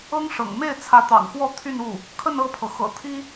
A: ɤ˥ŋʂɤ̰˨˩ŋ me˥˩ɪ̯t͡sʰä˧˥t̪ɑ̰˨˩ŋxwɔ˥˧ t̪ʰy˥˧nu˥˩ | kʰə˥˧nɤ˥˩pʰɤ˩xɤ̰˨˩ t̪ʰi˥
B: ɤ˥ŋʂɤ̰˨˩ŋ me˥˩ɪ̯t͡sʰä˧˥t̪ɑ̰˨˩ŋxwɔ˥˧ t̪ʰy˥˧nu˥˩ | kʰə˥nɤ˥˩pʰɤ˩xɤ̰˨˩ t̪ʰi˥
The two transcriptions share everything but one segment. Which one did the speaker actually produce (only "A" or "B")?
A